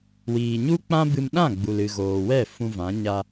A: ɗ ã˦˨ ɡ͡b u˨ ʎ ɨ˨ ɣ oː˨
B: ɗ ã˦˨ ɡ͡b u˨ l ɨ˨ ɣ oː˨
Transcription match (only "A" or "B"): B